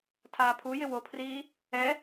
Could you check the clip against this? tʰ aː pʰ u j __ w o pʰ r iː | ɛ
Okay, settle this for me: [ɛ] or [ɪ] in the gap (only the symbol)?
ɪ